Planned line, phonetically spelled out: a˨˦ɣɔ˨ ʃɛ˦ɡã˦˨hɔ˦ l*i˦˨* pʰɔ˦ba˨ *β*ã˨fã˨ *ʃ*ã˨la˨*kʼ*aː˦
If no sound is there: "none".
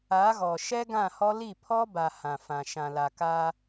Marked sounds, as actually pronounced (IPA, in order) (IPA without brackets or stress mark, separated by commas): i˦˨, h, ʃ, k